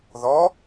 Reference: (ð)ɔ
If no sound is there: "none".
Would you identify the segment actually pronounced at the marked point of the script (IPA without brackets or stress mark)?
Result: ð